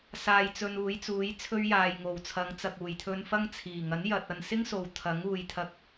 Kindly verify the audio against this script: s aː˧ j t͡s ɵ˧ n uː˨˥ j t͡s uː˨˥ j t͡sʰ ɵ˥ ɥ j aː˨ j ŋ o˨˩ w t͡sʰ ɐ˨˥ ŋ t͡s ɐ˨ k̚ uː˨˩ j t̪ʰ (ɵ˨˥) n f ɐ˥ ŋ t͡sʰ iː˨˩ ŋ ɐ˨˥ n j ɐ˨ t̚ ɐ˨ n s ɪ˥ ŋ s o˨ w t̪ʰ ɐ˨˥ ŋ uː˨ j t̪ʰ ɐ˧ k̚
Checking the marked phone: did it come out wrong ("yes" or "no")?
yes